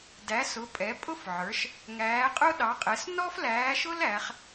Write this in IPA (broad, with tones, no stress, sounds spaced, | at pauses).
d æ˩˧ s ʊ˩˧ pʼ ɛ˩˧ pʼ ʊ˦ f ʕ ə˞˩˧ ʃ | ŋ æː˩˧ qʼ ʊ˦ ɗ ɑ˩˧ qʼ ɛ˩˧ s n ɔ˦ f l æː˩˧ ʃ ʊ˦ l æ˩˧ χ